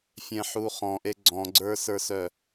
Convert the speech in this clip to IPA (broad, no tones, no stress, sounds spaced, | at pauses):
fʲ ɛ̃ ħ u χ ɔ̃ ʔ e ɡ͡ǀ ɔ̃ ɡ͡ǀ ə˞ s ə˞ s œ